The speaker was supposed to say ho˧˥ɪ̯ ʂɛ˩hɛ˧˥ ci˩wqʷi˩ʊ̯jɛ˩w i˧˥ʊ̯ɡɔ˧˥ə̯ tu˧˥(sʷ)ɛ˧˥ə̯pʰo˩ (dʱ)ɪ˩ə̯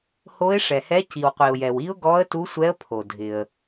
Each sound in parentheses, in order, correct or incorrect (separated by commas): correct, correct